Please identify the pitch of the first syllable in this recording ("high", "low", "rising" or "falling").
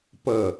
falling